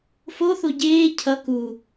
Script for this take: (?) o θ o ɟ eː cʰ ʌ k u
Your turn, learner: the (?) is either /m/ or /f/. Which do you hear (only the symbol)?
f